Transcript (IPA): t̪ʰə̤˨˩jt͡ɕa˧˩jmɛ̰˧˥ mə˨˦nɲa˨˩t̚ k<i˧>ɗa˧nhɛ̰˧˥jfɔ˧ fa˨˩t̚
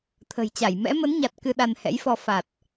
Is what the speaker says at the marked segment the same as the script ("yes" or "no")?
no